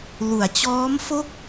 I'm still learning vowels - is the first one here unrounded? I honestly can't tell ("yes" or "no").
no